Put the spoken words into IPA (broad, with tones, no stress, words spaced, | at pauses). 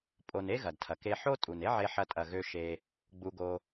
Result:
pʼo˨ne˥ɣɐ˩dtʰɐ˩ ke˨ħo˦tʼu˩ne˦ ʕe˨ħɐ˨tʼɐ˩ɣø˨ ʃe˨ | ɡ͡bu˨ɡo˨